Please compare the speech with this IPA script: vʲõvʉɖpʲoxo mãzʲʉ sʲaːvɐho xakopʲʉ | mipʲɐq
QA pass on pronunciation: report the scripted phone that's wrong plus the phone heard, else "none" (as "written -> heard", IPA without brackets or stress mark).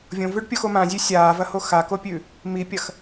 q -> x